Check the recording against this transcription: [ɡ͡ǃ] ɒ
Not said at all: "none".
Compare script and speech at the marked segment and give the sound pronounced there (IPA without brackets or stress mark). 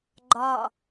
ɡ͡ǃ